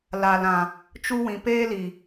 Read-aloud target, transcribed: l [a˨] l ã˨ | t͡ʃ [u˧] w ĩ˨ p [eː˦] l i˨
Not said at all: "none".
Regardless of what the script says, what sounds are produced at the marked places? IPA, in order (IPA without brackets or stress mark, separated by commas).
a˨, u˦, eː˦